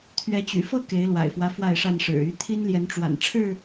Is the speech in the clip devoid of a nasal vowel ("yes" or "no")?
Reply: yes